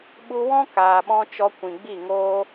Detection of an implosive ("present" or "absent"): present